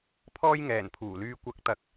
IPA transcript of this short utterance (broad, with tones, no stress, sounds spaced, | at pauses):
pʰ ɔː˧ j ŋ ɛː˨˩ n pʰ uː˨˩ l yː˨ kʷ ɐ˨˥ k̚ t̪ ɐ˨ k̚